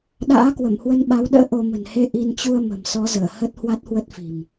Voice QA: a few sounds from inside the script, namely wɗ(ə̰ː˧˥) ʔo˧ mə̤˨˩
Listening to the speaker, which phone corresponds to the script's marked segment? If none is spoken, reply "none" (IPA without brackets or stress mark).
ə̰ː˧˥